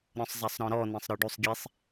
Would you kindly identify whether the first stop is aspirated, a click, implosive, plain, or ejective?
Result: plain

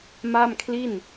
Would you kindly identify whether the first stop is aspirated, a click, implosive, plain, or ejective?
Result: aspirated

